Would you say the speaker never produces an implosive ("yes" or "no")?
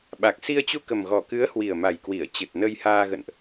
no